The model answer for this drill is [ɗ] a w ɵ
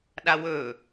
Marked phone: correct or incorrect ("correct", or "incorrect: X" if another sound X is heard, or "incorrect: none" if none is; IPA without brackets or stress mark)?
correct